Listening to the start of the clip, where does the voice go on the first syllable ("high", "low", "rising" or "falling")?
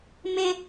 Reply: high